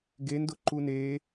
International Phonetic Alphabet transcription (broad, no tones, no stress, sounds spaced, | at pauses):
ɡ e n d ʊ ǃ u n e